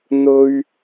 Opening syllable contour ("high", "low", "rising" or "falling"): high